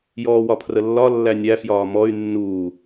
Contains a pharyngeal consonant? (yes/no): no